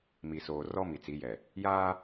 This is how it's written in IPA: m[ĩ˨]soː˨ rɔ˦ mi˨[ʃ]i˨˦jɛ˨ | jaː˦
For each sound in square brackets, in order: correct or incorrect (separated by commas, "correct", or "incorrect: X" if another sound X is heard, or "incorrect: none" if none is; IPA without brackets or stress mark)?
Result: incorrect: i˨, incorrect: t͡s